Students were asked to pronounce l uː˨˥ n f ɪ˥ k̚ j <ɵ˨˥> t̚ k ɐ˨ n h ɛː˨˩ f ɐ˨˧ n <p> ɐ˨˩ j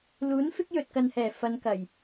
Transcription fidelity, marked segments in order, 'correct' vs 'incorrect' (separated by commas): incorrect, incorrect